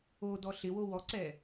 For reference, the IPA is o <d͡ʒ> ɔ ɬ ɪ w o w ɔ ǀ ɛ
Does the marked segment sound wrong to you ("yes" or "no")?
yes